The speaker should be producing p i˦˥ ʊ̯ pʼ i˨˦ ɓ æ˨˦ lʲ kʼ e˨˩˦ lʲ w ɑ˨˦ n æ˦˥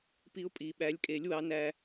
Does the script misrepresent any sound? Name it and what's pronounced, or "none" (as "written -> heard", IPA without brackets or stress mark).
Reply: none